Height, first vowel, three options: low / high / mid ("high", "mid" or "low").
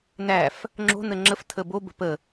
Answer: low